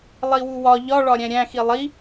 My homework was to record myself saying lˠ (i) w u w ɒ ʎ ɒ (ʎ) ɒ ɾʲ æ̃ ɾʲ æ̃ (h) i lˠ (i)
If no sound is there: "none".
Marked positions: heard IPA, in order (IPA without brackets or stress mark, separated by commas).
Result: i, ɭ, x, i